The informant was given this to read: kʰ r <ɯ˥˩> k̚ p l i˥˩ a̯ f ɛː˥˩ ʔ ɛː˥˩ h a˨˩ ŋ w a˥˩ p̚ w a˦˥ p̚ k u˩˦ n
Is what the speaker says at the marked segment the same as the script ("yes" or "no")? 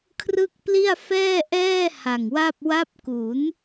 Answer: yes